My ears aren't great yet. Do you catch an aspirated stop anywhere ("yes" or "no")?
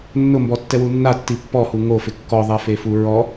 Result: no